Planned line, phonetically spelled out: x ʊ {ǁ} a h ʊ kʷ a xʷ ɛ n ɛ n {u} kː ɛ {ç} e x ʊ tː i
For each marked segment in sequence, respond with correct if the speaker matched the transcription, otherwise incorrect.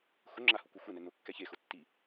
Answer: incorrect, incorrect, correct

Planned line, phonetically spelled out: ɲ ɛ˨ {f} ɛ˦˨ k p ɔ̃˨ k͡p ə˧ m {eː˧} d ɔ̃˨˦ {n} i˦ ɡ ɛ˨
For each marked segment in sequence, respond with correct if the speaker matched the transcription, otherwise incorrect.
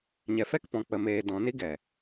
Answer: correct, correct, correct

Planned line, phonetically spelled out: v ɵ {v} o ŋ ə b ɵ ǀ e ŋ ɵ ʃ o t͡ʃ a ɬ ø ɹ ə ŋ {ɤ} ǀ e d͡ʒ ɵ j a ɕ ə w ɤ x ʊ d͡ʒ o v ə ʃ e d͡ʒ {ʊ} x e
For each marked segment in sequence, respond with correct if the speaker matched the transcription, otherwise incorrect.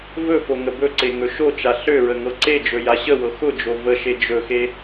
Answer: incorrect, correct, incorrect

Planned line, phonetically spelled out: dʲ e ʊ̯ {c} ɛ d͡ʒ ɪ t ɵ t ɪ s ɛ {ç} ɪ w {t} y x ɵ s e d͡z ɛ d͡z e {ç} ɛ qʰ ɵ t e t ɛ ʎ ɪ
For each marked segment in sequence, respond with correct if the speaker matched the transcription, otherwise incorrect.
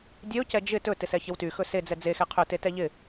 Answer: correct, correct, correct, incorrect

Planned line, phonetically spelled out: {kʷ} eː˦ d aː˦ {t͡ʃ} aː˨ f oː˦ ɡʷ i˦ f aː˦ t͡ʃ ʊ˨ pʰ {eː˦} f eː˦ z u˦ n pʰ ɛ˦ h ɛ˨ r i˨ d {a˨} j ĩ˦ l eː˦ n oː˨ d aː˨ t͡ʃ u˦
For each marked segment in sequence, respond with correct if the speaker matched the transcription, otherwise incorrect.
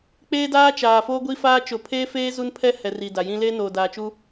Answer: incorrect, correct, correct, correct

